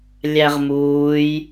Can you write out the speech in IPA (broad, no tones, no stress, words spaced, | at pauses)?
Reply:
lʲæʁmuːj